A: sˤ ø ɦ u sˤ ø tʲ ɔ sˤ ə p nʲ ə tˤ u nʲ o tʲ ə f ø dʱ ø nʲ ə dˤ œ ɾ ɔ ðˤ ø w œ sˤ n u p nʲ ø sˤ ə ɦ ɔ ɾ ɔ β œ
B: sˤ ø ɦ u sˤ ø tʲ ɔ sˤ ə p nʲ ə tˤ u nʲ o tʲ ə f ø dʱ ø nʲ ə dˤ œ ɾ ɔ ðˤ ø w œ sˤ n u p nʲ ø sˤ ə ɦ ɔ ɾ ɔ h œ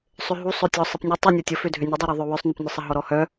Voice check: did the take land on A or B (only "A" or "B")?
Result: B